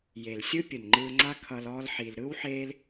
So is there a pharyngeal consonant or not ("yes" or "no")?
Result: yes